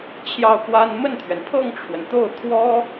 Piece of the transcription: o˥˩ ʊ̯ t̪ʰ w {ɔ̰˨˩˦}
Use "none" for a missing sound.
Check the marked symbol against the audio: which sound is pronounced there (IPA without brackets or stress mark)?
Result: ɔ˥